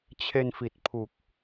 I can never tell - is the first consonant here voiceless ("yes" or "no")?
yes